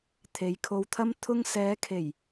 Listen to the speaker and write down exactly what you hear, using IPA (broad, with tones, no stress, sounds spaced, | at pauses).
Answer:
t̪ʰ e˨˧ j kʰ o˧ w t̪ʰ ɐ˥ m t̪ʰ ʊ˧ ŋ s ɛː˨˧ kʰ e˨˩ j